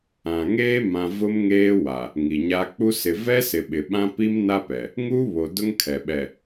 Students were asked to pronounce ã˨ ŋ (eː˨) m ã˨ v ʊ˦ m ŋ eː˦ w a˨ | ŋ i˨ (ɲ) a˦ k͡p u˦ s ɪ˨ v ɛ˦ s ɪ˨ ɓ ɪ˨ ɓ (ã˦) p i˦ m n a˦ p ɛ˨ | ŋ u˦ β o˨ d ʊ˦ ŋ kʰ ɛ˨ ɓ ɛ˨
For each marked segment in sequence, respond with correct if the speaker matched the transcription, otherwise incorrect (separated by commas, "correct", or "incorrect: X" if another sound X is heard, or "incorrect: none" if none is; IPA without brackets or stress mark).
incorrect: eː˦, correct, correct